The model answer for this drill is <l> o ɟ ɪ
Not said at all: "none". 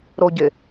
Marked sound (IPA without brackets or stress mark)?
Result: ɾ